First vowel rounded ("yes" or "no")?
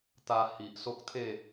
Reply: no